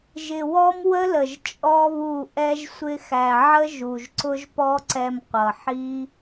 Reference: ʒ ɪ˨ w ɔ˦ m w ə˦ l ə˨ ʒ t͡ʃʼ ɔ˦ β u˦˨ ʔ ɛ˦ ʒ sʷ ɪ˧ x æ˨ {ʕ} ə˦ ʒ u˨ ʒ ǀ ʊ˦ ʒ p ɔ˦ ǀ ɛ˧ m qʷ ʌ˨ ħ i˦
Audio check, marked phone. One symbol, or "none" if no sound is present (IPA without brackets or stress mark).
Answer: ʕ